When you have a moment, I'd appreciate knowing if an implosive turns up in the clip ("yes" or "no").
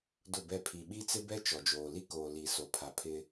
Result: yes